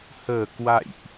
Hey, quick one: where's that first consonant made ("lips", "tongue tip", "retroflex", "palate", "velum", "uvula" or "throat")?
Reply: throat